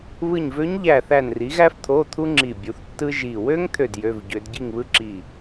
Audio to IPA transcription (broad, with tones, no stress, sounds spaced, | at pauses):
β ɯ˧˩ ɲ v ø˧˥ ɲ ʎ æ˧˩ θ æ˧˩ n r i˩˥ ɣ æ˥ f t̪ʰ o˧˥˧ t̪ʰ u˥ ŋ͡ǁ i˧˩ bʲ u˩˥ θ tː ɯ˥ ʒ i˧˩ w ø˥ ŋ t̪ʰ ø˧˩ d j ø˧˥˧ v ɟ ø˧˥ d ɟ i˥˨ ŋ β ɯ˥ ǁ i˧˩